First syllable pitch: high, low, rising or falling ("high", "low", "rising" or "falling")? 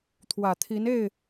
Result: low